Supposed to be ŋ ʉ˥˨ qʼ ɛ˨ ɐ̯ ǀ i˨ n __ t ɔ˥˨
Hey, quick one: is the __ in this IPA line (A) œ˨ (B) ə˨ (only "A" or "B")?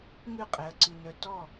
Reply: A